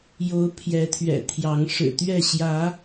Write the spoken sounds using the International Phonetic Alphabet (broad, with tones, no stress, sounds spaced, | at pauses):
j o˨˦ ʊ̯ pʰ j ɛ˨˦ t̪ʰ ɥ ɛ̰˨˩ t̪ʰ j ɑ˨˦ ŋ ʂ ɻ̩˨˩ t̪ ɥ ɛ˥˨ ɕ j ä˨˦